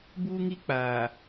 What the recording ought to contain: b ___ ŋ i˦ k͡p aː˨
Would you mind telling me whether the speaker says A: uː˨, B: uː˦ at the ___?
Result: B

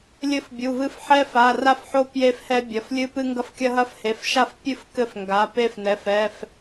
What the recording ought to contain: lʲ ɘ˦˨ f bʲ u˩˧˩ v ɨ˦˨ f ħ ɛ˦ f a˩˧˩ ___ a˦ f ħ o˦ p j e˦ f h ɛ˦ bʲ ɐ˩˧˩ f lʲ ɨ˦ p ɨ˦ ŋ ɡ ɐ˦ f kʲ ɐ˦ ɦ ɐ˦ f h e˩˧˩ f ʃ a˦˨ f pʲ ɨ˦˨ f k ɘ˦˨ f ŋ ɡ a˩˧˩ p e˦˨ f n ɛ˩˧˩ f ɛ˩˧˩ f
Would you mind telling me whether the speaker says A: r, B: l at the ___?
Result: A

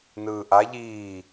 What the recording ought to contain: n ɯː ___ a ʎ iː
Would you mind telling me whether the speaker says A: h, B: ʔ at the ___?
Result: B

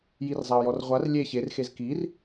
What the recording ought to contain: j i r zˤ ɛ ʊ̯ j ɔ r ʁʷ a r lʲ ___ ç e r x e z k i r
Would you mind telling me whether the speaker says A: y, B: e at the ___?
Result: B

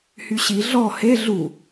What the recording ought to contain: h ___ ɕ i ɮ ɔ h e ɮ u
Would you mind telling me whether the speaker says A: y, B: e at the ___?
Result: A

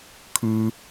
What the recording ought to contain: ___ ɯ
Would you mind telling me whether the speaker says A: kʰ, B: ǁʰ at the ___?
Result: A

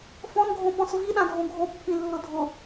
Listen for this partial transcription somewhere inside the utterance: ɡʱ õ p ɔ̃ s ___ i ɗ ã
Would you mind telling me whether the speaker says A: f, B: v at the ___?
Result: B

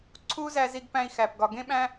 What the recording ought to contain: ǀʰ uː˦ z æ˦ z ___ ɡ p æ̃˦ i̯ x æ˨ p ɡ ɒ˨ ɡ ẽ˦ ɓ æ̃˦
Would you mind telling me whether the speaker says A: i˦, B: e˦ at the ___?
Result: A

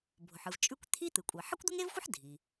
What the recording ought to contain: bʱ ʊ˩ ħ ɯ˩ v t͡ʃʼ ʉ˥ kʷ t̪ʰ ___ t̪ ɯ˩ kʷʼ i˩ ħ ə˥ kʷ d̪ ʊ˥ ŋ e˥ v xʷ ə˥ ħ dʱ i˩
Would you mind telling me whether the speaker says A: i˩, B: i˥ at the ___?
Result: B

